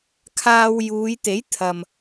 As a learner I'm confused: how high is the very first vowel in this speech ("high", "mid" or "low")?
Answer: low